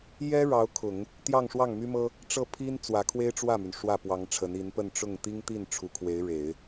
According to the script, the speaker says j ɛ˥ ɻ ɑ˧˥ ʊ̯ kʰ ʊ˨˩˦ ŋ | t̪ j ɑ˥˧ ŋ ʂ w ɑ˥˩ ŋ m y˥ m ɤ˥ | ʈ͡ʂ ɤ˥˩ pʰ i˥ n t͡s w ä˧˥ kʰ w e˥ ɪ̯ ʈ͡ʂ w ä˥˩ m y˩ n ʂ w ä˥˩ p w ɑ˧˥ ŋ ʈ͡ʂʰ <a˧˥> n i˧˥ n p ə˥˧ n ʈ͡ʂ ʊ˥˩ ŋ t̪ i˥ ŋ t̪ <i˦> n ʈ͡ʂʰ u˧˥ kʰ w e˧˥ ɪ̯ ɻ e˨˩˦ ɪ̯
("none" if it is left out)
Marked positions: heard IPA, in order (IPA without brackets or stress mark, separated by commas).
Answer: ə˧˥, i˥˩